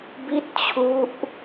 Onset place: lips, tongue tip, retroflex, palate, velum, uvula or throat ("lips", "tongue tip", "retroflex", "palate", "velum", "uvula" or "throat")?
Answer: lips